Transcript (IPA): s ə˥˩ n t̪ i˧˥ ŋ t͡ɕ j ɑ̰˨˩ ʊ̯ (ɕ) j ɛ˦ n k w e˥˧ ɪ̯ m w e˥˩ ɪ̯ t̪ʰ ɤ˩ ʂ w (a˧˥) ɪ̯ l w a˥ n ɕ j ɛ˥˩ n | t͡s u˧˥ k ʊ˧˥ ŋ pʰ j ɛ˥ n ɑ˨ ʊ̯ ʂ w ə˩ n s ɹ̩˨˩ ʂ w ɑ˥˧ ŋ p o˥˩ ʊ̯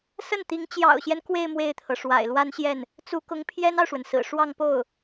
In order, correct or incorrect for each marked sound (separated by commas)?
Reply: correct, incorrect